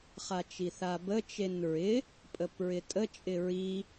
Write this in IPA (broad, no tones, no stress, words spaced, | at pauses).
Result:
χat͡ʃiθabə t͡ʃenɹɪ | pʼəpɹɪtʼə t͡ʃʼɪɹi